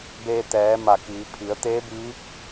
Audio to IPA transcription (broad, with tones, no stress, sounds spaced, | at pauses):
b eː˧ t̪ ɛː˩˧ m a˧˩ k iː˩˧ pʰ i˩˧ ə̯ t̪ eː˧˥ b iː˧˥ p̚